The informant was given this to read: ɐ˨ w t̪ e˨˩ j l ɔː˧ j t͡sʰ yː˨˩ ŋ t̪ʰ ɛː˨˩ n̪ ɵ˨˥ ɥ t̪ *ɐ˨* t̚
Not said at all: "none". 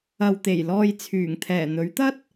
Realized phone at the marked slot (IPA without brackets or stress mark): ɐ˥